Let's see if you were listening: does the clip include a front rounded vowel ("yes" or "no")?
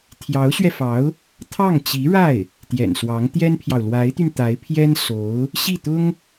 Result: yes